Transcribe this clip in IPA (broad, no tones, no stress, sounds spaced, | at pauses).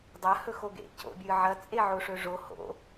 dˤ ɐ h ɵ x o ɡ ḛ c o̰ bʲ ɨ ʕ ɐ t͡sʼ e ʕ o ʂ ɵ ʐ o h o̰